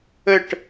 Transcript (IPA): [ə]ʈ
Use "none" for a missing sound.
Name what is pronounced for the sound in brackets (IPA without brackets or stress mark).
ə